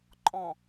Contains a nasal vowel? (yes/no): yes